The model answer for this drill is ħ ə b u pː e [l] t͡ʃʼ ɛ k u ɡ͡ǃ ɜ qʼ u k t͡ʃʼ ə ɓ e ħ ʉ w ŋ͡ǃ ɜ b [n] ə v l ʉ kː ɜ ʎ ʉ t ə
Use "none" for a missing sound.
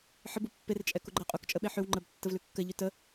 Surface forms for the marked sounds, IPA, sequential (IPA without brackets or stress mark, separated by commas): r, tː